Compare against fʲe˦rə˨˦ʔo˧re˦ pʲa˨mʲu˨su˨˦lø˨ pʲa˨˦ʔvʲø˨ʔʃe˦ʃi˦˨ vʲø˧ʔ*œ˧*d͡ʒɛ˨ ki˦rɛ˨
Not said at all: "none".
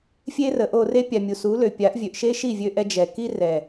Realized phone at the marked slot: ɛ˧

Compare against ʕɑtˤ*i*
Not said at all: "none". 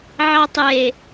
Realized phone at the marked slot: e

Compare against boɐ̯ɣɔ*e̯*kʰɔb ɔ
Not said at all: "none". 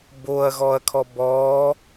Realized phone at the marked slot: ɐ̯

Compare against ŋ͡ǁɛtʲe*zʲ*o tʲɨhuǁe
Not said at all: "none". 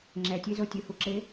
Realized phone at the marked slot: z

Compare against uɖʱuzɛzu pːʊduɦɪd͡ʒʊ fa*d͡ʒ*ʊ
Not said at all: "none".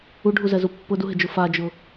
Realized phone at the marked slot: d͡ʒ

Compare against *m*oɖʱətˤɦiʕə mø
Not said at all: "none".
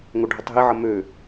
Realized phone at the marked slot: ŋ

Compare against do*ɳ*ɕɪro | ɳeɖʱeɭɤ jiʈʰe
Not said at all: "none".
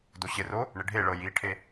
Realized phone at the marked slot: none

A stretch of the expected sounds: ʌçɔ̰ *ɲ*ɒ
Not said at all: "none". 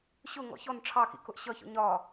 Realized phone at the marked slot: ɲ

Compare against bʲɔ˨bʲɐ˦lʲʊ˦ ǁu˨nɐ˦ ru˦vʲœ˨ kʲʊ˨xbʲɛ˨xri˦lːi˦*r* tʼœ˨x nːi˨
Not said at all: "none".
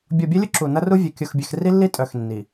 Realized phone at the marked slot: none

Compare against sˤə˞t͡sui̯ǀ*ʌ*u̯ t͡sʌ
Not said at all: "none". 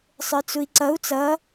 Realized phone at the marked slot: ʌ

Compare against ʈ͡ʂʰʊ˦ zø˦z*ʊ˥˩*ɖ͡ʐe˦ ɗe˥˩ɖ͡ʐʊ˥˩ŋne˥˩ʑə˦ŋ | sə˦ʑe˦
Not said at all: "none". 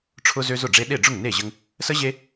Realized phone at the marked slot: ʊ˥˩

